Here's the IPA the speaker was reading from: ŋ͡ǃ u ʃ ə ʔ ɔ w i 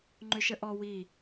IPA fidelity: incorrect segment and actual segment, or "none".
u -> ʏ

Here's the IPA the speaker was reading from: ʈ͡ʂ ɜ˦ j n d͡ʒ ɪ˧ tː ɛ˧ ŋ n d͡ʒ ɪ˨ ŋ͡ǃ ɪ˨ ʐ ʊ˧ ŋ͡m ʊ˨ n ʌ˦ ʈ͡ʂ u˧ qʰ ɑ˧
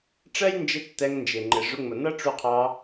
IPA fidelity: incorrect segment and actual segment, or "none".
none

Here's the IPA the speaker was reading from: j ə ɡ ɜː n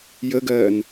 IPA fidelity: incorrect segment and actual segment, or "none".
none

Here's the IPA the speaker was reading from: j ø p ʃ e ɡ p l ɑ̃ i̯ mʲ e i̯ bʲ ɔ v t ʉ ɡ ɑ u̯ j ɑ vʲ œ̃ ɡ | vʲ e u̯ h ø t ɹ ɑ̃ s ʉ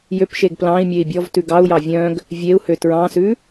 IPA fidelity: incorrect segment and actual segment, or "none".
none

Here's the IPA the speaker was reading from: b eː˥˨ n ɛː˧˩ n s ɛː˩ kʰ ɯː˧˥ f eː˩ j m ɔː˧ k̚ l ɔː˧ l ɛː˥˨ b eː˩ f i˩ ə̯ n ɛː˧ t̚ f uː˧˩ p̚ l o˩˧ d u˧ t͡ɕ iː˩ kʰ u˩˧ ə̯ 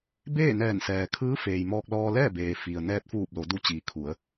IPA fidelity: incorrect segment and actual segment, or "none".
none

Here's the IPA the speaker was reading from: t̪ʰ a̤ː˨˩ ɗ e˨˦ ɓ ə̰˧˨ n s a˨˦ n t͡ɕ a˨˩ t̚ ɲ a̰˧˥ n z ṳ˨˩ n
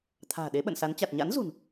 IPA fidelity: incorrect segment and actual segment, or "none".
none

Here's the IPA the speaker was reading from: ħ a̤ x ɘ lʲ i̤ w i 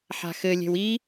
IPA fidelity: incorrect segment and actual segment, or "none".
i̤ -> e̤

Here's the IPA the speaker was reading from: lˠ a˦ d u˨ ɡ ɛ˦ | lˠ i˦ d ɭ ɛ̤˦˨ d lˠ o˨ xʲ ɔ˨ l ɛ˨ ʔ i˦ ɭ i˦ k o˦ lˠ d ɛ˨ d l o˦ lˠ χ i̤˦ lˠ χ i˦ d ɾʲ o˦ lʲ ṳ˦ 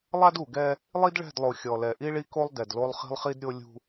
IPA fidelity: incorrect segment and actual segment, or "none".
none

